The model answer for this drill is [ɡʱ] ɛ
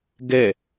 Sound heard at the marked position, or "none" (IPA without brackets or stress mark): ɡ